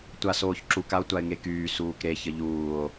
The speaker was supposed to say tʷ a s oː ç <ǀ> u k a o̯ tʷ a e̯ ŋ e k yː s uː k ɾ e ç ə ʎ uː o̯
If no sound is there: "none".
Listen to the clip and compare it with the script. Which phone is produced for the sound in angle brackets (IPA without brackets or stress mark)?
ǁ